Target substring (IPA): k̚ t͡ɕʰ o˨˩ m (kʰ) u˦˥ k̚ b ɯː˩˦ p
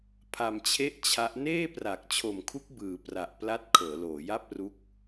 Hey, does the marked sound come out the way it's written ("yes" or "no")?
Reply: yes